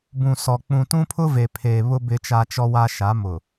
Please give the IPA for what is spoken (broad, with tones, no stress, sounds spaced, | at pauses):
b ũ˨ s ɔ˨ k͡p ũ˨ t ũ˦ pʰ ʊ˦ v e˨ pʰ eː˨ β ʊ˦ b ɪ˨ t͡ʃ a˨ t͡ʃ ɔ˨ w a˨ ʃ a˨˦ m ʊ˨